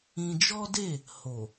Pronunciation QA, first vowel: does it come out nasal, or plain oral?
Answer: nasal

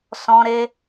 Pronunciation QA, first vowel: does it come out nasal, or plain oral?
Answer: nasal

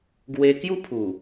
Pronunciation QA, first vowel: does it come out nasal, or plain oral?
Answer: oral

